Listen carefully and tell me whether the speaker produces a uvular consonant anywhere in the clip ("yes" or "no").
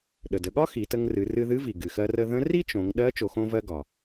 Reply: no